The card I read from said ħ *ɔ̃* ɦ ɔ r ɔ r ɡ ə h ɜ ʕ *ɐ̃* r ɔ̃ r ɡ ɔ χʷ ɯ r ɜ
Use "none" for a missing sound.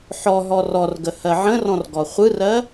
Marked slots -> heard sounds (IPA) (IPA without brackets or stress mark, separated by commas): ɔ, ə̃